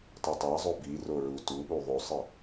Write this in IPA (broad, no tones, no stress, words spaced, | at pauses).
tˤɨtˤa zˤobi roɹu tuɓu ðˤosˤɨ